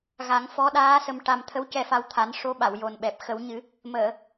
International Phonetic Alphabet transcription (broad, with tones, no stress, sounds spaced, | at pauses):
ɣ a˨˩˦ ŋ f ɔ˧˥ ɗ aː˧˥ s ə˧ m ʈ a˧ m t̪ʰ ə˧˥ w c ɛ˧ f a˧ w t̪ʰ a˨˩˦ n ʂ o˧˥ ɓ a˨˩˨ w j o˨˩ n ɓ ɛ˨˩ p̚ x ə˨˩˦ w ɲ ɨ˨˩˦ | m əː˨˩˨